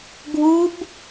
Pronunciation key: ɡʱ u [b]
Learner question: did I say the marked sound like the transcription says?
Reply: yes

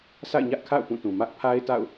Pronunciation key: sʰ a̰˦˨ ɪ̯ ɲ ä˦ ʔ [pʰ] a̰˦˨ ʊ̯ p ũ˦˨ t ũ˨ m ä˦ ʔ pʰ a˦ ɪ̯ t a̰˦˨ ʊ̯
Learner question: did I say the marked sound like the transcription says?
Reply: no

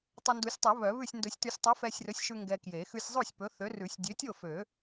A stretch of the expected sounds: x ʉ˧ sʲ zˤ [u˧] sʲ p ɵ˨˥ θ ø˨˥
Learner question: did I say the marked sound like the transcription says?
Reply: no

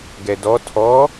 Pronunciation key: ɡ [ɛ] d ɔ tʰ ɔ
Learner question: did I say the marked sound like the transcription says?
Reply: yes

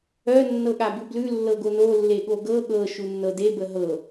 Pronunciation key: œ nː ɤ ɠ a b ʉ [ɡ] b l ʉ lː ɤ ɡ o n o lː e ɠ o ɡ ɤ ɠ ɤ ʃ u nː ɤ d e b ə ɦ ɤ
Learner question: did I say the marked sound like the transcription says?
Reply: no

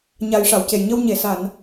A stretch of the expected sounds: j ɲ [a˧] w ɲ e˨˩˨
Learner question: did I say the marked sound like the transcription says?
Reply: no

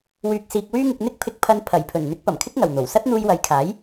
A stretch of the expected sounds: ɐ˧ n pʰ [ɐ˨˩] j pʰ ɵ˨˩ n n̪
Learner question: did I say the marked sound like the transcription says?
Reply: yes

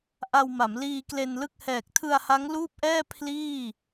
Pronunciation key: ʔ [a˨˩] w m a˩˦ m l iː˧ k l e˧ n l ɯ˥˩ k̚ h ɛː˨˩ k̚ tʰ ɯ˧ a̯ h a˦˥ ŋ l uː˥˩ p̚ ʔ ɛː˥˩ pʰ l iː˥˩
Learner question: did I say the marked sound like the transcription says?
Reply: no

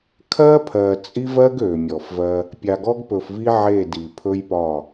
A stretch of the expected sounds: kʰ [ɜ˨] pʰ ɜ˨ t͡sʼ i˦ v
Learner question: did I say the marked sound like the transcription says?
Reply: no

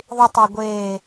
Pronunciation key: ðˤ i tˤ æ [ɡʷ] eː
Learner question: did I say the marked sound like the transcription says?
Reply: yes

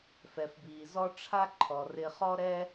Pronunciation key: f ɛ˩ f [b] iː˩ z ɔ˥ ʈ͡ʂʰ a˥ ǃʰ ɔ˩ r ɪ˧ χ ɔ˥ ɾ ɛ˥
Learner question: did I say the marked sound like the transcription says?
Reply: yes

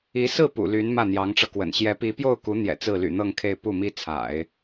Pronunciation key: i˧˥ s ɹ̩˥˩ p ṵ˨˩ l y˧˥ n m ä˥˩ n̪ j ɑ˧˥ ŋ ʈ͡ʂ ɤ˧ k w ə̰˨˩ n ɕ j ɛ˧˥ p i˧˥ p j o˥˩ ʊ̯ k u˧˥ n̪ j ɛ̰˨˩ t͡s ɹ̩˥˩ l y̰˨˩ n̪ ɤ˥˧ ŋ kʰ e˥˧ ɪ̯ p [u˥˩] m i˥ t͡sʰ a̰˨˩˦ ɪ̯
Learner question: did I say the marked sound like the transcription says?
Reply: yes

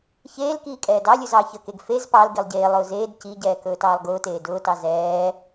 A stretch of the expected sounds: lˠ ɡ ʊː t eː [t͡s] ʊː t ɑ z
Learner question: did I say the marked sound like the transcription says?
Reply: no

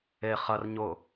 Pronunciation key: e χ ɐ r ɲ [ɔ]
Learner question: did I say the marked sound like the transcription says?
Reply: no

